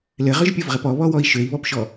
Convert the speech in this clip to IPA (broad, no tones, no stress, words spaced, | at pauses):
lɘʁʏʒpʲovʁɘp ɔβɔwɔi̯ ʃøi̯βɔpʃɔ